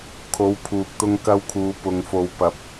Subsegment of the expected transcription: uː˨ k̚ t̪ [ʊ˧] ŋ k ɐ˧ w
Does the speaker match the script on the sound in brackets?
yes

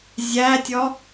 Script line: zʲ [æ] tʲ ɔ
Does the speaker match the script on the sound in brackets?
yes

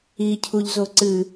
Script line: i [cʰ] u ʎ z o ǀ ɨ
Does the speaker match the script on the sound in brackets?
yes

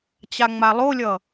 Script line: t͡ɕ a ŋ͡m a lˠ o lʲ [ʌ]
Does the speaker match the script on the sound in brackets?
yes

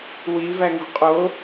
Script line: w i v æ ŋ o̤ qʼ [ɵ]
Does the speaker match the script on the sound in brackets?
no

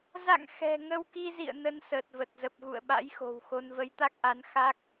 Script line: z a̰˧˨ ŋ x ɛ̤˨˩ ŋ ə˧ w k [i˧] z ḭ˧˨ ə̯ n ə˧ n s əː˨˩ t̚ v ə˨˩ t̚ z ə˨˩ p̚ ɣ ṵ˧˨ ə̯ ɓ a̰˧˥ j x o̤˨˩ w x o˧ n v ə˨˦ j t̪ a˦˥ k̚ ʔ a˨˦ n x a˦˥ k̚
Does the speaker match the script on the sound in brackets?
yes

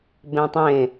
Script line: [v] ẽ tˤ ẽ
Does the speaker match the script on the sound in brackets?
no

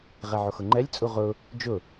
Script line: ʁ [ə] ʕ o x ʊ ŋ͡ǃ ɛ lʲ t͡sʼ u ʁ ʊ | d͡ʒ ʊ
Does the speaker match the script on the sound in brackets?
no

